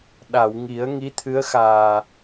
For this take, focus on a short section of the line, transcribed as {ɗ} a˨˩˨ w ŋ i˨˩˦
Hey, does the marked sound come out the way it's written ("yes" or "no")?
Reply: yes